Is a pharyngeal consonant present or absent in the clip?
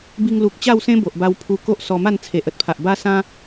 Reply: absent